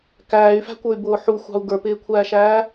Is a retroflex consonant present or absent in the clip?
absent